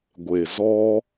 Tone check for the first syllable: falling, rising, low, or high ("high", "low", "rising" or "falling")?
low